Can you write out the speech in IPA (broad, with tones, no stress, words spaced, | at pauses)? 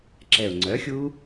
ǁɛ˨˩ʊ̯ŋ͡ǀœ˩˥xʲu˦˥